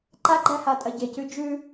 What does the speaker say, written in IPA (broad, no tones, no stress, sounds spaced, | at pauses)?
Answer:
ǃ a ɡ͡ǃ æ h a tʼ ɐ ɟ e c ʉ d͡ʒ ʉ